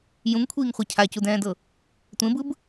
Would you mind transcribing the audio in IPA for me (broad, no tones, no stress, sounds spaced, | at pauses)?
j ũ ŋ kʷʰ iː ŋ χʷ ɛ cʰ a c u d ɛ̃ː d ɤ | tʷ ẽ b ɯ b